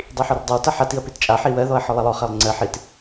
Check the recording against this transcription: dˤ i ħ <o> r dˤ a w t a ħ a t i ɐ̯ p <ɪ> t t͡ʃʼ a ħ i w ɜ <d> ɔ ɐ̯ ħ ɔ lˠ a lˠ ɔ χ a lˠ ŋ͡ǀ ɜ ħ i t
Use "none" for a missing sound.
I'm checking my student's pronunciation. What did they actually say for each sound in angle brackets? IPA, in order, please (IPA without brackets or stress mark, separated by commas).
ɔ, i, ð